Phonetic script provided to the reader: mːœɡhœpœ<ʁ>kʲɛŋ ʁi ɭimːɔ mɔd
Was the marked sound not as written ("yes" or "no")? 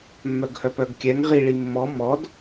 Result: yes